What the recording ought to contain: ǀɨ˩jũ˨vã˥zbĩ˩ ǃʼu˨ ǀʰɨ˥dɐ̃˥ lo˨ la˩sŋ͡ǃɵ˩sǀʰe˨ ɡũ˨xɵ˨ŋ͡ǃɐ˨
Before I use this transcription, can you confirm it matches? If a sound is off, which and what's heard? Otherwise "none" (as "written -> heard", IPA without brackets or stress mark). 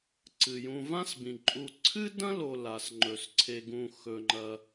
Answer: z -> s